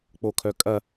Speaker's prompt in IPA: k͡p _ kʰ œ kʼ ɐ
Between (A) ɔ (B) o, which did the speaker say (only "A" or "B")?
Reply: B